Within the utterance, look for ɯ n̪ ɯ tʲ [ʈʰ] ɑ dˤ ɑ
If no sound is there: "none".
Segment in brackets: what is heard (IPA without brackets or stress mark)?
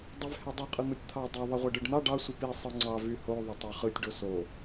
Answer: t̪ʰ